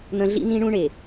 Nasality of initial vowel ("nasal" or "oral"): nasal